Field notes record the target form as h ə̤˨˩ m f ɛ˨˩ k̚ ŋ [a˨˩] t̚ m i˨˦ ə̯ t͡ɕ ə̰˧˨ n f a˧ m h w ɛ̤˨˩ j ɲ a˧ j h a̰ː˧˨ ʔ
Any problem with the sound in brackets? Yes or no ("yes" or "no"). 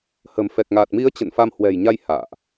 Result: no